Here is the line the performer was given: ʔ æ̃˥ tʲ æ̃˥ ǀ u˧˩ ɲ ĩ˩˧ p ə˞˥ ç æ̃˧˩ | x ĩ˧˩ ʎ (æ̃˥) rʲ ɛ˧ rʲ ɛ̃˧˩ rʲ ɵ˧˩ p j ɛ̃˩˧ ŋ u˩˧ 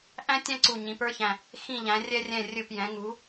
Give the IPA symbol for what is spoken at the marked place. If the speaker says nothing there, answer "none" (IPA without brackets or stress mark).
æ̃˩˧